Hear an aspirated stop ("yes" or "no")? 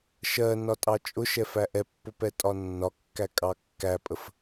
no